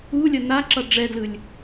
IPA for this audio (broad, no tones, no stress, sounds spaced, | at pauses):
u lʲ ʌ n a ǁ ʌ ɖ͡ʐ ɛ d l ɯ lʲ